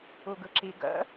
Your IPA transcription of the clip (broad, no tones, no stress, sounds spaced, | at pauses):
u ɡ ɯ ǁ i ɡ ə̰